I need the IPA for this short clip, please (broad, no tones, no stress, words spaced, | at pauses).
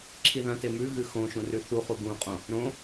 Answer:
ǁʰiðɐ̃te mʉɣɨ xõʃũ rʉθuχu ɡũqʼõ | ɾõ